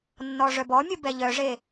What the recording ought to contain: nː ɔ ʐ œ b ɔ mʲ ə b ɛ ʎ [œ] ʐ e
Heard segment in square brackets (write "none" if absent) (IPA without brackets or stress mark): œ